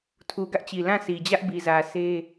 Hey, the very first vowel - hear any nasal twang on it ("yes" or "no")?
no